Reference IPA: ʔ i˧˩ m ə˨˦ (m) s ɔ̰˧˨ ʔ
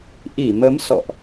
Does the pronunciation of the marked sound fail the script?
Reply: no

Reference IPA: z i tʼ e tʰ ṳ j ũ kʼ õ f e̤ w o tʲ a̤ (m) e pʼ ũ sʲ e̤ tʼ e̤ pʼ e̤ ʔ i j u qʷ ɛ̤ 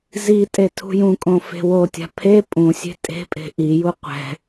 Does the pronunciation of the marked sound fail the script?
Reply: yes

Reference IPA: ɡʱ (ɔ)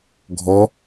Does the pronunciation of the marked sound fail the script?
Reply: no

